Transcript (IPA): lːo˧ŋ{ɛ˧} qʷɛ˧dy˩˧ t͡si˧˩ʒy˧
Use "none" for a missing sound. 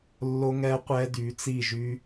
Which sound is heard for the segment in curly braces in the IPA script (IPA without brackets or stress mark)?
ɛ˧